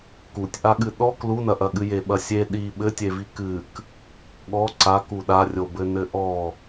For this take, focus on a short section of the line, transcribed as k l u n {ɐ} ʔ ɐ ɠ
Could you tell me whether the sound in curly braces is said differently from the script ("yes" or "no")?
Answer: no